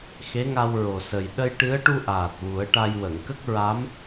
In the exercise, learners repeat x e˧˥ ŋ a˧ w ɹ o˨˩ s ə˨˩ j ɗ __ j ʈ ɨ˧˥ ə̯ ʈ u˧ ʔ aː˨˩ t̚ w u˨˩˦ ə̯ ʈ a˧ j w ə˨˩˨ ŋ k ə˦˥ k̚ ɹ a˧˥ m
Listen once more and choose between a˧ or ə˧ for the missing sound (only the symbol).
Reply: ə˧